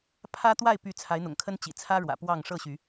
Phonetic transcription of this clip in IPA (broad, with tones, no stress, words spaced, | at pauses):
pʰä˦t̪wa˥˨ɪ̯py˨˦ t͡sʰa˨˦ɪ̯n̪ʊ̰˨˩ŋkʰə˦n t͡ɕḭ˨˩t͡sʰä˦ ɻwä̰˨˩pwɑ˥˨ŋ ʂɤ˥˨ɕy˨˦